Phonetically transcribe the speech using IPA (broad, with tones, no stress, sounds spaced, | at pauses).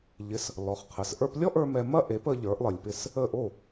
ʎ ɪ˩˥ s | l ɔ˩˥ χ qʰ ɘ˩˥ s ʔ ə˞˧ p lʲ ɔ˥ ʔ ə˞˧ m ɛ˧ m ɐ˥ ʔ e˩˥ p ə˧ ʎ ə˞˩˥ ʔ lˠ ɘ˩ lʲ p ɪ˥˩ s | ə˥˩ ʔ o˥˩